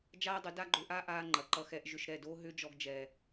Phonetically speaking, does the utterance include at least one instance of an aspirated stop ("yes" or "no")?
no